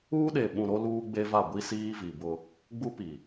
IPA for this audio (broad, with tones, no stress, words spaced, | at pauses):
uː˦ɗe˨ɓũ˨ ɾo˦luː˦ɡ͡be˦va˦˨ ɡʷi˦siː˦vi˨bʊ˦ | ɡ͡bu˦pi˨